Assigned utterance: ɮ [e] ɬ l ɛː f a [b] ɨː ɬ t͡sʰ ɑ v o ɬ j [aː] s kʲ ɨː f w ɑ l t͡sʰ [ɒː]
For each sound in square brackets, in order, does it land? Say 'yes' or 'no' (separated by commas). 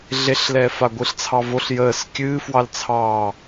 yes, no, no, no